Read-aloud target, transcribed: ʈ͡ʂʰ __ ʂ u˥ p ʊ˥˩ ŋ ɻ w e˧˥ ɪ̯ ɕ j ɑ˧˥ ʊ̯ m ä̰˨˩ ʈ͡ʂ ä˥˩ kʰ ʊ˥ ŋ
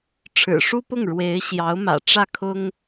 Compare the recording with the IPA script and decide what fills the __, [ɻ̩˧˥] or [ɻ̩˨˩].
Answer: ɻ̩˨˩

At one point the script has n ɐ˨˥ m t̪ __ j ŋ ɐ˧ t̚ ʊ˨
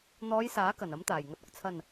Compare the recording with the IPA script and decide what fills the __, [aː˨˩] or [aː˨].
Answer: aː˨˩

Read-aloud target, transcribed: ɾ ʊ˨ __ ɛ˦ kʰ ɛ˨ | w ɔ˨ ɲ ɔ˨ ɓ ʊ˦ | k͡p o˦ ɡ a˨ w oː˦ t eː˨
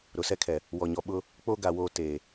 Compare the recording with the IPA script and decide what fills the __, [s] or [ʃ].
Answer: s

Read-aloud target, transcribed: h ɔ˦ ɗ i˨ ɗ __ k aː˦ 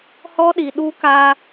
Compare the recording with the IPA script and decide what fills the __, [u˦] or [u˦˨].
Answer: u˦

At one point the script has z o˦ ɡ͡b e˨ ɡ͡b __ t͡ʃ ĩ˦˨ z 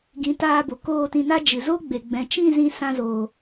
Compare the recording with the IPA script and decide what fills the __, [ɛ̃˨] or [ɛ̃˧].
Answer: ɛ̃˨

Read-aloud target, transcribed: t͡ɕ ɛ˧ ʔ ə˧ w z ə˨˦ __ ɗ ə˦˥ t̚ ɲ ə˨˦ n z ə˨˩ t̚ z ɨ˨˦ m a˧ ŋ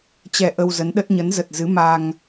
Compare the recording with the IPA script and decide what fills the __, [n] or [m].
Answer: n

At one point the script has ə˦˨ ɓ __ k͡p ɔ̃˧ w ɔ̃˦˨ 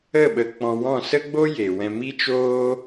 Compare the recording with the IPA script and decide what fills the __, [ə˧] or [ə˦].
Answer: ə˧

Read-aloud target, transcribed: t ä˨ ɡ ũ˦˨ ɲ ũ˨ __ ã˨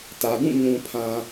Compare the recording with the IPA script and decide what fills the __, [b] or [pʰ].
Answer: pʰ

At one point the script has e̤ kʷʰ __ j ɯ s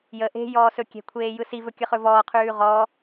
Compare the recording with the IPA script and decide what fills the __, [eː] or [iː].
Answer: eː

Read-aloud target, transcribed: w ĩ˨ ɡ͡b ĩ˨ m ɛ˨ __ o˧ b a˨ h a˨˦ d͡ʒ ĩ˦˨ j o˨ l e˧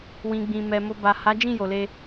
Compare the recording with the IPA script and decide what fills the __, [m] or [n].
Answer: m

